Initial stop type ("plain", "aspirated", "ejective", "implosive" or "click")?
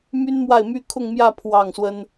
aspirated